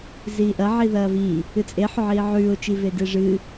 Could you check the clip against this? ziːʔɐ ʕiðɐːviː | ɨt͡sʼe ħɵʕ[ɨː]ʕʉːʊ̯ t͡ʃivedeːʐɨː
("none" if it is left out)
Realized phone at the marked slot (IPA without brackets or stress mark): iː